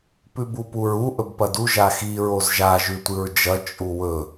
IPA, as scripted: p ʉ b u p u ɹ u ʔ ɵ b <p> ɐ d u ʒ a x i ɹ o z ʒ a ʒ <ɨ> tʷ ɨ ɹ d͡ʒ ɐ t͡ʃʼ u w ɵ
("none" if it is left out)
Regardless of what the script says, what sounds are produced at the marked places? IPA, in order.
p, ʉ

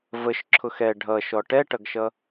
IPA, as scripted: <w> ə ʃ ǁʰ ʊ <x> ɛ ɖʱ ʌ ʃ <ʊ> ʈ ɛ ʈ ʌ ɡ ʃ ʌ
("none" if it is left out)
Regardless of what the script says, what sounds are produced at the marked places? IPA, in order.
v, x, ɔ

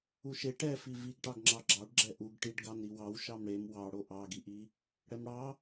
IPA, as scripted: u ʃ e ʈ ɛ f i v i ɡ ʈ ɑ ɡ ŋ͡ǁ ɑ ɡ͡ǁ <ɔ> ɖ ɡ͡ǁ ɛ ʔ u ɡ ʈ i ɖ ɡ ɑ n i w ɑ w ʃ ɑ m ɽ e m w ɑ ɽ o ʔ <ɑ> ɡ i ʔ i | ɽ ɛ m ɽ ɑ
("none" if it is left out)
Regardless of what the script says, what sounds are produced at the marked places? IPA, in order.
ɑ, ɑ

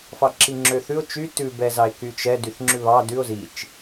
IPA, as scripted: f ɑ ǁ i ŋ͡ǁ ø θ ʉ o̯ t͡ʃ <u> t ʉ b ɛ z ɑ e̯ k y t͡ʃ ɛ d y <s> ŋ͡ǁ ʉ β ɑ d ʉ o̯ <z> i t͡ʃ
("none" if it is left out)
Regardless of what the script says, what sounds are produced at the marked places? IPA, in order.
y, θ, z

